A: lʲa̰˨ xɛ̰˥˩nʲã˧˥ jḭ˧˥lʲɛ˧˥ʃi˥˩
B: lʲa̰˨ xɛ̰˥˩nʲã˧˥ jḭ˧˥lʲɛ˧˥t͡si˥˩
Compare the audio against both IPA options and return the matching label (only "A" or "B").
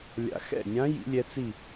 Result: B